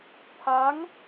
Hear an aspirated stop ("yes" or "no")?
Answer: yes